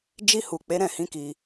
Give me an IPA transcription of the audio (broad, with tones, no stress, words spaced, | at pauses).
d͡ʒi˧hu˨ k͡pe˨˦ɾɛ̃˦˨hĩ˨˦ ki˧